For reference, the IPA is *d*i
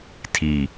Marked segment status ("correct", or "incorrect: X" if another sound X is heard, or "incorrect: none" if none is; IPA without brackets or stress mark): incorrect: tʰ